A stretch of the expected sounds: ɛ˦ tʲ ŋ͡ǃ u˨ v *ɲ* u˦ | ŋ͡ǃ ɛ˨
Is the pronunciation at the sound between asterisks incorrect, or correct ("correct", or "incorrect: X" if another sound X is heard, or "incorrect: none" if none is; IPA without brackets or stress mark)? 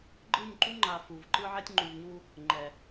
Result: correct